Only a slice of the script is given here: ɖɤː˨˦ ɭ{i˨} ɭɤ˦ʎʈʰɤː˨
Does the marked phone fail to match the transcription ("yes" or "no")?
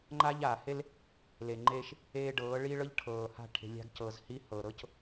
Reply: yes